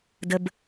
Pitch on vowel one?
high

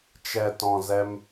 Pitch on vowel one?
low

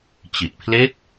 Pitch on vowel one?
low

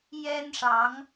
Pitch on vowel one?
high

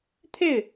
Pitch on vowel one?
falling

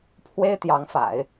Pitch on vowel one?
high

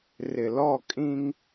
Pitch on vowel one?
low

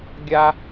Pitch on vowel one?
high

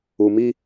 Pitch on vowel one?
low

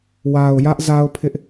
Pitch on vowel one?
low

